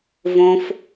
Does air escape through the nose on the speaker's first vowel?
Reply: yes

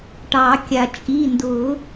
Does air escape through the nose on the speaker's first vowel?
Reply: no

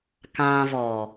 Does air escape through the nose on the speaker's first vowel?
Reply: yes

